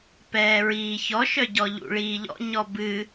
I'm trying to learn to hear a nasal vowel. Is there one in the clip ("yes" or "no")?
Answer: no